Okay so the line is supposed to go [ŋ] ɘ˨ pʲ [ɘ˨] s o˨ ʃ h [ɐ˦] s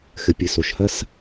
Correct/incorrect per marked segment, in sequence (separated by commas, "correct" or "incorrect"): incorrect, correct, correct